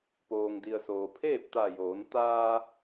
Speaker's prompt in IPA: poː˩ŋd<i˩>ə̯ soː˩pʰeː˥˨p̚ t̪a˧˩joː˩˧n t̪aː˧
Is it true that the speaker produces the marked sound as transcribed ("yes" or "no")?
yes